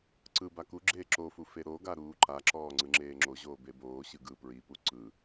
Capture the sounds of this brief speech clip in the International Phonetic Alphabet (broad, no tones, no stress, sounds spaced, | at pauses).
ǀ ɯ b a k u ɡ͡ǁ eː ǁ o f u f e ɾ o ɡ a ɾ uː ǃ a ǁ ɔː ŋ͡ǀ ɯ ŋ͡ǁ eː ŋ͡ǁ o ʑ oː b e b oː ɕ ɯ ɡ ɯ p ɹ i p u ǀ ɯ